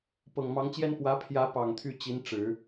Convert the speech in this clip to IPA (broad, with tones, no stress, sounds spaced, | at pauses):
p ɤ˨˩ ŋ m ɑ˧˥ ŋ t͡ɕ j ɛ˥ n p w ä˧˥ pʰ j ä˧˥ p ɑ˨˩ ŋ t̪ʰ y˥˩ t͡ɕ i˧˥ n ʈ͡ʂ ɻ̩˨˩˦